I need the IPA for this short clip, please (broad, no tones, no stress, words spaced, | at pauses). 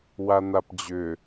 wan̪apd͡ʑʏ